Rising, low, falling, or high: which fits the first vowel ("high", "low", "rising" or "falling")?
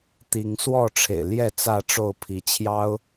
rising